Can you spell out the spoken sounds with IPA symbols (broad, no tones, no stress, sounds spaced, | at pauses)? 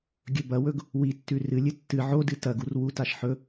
ɡʲ ɵ b ɐ w ɵ ɡ | w i tː ʉ r ɨ lʲ ɨ tː ɨ ʕ o d ɨ t ɐ ɡ u r w u t a ʃ ħ ɵ